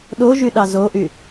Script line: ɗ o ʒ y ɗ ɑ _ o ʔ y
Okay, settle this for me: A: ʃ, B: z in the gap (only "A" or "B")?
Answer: B